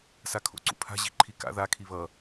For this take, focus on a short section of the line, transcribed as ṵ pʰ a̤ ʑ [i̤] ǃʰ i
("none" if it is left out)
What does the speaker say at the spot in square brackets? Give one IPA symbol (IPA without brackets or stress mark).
i̤